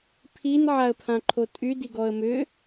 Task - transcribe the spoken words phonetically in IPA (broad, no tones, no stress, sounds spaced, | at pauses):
pʰ i n ʕ a ə̯ pʰ ã ǃʰ o tʼ y d i ɡ ɔ ə̯ m ʏ